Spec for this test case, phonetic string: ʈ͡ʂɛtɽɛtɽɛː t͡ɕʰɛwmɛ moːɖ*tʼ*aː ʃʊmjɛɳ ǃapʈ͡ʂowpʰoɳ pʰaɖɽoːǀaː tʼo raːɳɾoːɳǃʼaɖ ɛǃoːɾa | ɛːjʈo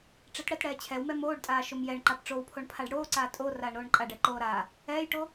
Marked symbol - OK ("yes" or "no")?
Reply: yes